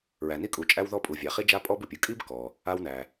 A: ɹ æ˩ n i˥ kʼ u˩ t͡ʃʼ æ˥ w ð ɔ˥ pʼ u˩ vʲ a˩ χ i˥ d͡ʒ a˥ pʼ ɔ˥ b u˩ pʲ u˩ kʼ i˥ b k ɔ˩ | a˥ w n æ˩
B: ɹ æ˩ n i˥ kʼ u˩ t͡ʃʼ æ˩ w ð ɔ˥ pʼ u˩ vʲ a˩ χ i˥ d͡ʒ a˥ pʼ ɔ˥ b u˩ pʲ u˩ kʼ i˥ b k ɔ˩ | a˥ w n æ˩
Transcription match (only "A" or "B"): A